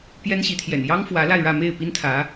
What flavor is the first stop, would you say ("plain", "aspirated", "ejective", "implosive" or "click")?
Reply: plain